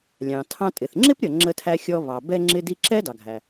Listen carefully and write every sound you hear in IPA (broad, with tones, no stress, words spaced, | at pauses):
lʲɑ̃˩tʰɑ̃˧ tʼɪ˩θŋ͡ǁɪ˥pɾʲʌ˩ ŋ͡ǁə˧tʰæ˧xʲɔ˧ βɑ˩ bɛ˧ŋ͡ǁɪ˧di˧ ǁɛ˥ dɑ˩ɡʱæ˩